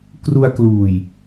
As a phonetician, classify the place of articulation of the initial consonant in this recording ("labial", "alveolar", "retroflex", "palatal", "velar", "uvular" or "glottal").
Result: velar